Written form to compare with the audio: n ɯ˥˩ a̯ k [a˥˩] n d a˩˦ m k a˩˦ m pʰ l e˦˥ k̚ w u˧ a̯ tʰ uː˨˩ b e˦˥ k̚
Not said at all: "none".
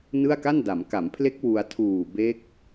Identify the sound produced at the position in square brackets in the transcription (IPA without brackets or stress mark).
a˥˩